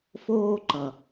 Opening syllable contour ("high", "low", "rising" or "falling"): high